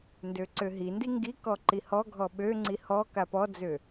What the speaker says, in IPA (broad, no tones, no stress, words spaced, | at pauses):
ndøǀøɦindi ŋɡi kɔǃihɔɡʱɔ ɓøŋ͡ǀi hɔ kapɔd͡zø